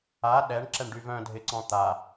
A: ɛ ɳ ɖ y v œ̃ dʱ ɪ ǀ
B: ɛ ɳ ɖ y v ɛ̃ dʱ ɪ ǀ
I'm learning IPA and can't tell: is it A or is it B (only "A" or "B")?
A